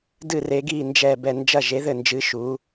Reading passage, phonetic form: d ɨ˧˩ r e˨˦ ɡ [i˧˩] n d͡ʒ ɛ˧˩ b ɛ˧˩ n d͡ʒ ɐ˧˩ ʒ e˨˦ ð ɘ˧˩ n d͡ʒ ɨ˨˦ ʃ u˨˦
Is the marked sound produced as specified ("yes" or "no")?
yes